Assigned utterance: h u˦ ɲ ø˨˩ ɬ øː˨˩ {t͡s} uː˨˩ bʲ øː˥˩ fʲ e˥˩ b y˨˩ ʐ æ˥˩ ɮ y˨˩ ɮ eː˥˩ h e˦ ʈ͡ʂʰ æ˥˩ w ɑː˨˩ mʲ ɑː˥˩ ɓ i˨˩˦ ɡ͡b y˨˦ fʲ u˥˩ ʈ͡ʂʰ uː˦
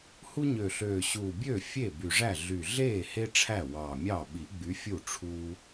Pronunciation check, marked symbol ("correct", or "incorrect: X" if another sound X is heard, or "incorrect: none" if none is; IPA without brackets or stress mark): incorrect: ɕ